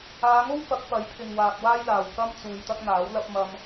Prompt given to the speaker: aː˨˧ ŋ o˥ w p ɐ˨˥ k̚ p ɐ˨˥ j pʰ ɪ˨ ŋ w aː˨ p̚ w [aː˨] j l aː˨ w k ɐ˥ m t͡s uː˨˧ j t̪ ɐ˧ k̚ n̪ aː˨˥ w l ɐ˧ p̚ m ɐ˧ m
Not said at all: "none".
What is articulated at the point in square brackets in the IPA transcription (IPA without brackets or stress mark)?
aː˥